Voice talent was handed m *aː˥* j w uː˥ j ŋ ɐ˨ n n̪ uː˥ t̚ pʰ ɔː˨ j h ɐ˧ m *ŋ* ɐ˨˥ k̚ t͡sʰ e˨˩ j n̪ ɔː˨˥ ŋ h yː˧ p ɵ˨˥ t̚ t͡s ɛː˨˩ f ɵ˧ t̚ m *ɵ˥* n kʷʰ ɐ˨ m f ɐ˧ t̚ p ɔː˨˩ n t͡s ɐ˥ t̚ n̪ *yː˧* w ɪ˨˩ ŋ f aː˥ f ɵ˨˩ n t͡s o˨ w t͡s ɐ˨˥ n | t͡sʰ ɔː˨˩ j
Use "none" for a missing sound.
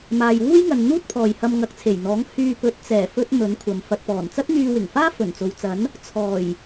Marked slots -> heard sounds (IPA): aː˨, ŋ, ɵ˨˥, yː˧

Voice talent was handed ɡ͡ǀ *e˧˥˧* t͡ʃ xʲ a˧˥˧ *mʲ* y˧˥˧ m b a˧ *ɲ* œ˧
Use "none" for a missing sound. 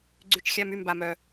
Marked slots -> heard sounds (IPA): y˧˥˧, m, m

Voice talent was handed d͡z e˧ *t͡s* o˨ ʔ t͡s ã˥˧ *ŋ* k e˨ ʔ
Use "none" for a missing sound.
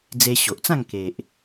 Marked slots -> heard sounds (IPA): ɕ, ŋ

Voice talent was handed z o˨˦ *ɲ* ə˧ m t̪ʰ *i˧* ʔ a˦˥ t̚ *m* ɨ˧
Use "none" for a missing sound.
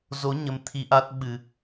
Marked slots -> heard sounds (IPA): ɲ, i˧, ɓ

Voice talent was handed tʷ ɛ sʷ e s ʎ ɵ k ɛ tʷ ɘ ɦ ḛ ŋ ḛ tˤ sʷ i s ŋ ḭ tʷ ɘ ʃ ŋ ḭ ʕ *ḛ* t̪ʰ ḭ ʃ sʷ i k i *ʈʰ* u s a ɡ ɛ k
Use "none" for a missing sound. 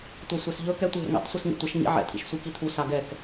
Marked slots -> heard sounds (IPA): ɛ̰, t̪ʰ

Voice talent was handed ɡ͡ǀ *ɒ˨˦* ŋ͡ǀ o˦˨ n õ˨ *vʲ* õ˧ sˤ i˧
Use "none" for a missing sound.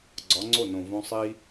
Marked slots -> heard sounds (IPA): ɒ˨˦, v

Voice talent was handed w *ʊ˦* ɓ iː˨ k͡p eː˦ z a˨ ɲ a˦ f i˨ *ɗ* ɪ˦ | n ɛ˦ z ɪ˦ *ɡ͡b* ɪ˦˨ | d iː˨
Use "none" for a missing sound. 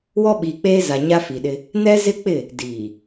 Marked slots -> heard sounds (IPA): ɔ˦, ɗ, k͡p

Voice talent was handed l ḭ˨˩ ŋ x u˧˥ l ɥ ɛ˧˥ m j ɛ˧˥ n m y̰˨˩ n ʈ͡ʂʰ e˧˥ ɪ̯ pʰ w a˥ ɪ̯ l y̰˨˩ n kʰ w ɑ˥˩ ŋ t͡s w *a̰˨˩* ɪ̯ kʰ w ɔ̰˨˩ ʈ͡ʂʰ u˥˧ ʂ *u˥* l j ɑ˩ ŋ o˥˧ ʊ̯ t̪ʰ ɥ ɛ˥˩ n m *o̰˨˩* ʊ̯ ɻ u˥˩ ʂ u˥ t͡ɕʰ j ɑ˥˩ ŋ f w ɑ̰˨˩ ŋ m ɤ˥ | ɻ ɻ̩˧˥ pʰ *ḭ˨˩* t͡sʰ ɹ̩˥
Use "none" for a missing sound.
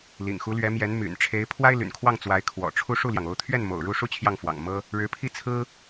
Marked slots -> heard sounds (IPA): a˧˥, u˥˩, o̰˨˩, i˥˩

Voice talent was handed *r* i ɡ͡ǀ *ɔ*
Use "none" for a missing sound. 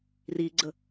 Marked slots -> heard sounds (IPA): r, ə

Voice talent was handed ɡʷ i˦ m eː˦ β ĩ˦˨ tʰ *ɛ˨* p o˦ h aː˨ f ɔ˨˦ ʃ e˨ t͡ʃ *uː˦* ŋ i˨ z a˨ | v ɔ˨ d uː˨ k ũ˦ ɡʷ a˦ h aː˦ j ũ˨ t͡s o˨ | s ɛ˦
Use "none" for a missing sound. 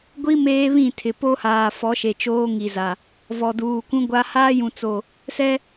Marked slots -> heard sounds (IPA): ɪ˨, oː˦

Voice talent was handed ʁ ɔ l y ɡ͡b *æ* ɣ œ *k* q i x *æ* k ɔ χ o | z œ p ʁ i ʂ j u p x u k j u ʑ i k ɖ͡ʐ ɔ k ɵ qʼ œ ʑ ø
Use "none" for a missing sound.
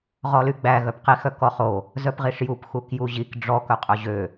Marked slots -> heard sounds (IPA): æ, p, œ

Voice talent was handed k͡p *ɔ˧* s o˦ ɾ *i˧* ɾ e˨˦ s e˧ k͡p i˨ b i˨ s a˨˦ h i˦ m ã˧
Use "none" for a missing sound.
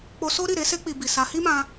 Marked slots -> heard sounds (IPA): o˧, i˦˨

